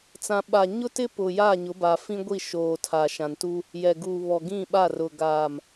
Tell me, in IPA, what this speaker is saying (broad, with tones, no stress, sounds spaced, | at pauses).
t͡s ã˨ ɓ a˨ ɲ ʊ˦ t ɪ˦ p ʊ˨ j aː˦˨ ɲ ʊ˨˦ b a˨ f ĩ˦ ɡʷ i˦˨ ʃ oː˨ tʰ a˨ ʃ ã˨ n t u˦ | j ɛ˨ ɡ uː˨ β ɔ˨ ɡ ĩ˦˨ ɓ a˦˨ r ʊ˨ ɡ aː˨ m